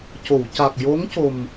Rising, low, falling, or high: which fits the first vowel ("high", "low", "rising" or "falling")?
low